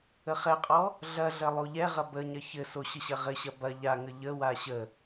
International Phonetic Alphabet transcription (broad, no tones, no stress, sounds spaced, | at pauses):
ə χ ɛ qʼ ɔ | ɮ ɐ ɮ ɐ lˠ o ʎ ɛ ʁ ɐ b ə ɲ ɐ ç ɘ s o ɕ ə ɕ ɐ ʁ ɘ ɕ ɐ b ɐ ʎ a ŋ ə ʎ ə w a ɕ ə